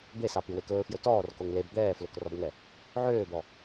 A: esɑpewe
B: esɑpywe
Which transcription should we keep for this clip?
B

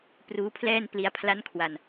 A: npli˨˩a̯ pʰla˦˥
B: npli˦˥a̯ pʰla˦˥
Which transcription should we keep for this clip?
B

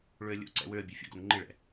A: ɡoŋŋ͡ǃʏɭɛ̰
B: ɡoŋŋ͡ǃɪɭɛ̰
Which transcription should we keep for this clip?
B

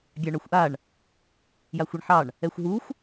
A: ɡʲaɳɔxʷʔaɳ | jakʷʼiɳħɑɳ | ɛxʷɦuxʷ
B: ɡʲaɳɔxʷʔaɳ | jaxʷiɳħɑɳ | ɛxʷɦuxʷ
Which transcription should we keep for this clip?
B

